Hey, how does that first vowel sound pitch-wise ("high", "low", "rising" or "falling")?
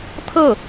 falling